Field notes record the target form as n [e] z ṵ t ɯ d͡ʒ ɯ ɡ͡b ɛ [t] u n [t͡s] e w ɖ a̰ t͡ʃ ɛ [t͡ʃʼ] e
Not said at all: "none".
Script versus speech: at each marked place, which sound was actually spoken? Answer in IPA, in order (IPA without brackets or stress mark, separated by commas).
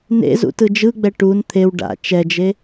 ḛ, ʈ, t̪ʰ, d͡ʒ